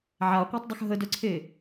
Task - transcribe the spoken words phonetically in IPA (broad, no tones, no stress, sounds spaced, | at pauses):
ʕ a qʷ a tˤ dˤ ə x ɦ ə d œ ǀʰ e